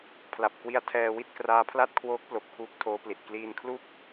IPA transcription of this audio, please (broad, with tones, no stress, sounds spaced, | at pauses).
pʰ l a˨˩ p̚ k w i˧ a̯ tʰ ɛː˧ w i˥˩ t̚ k r aː˦˥ pʰ l a˥˩ t̚ kʰ w oː˦˥ k̚ p l o˨˩ k̚ pʰ uː˦˥ k̚ tʰ oː˦˥ p l i˨˩ t̚ k l iː˧ n kʰ l u˥˩ k̚